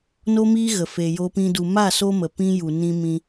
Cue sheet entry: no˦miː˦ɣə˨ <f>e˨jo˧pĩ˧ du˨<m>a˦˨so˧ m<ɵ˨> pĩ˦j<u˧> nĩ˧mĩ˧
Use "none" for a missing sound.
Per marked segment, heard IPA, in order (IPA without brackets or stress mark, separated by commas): f, m, ə˨, u˨